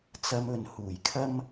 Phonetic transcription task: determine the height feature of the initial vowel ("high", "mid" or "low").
low